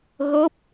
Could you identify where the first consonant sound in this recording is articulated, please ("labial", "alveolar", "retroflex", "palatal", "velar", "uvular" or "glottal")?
velar